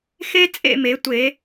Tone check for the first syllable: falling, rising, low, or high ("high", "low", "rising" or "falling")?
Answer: high